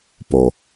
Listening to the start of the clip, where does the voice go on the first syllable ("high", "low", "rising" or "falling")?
low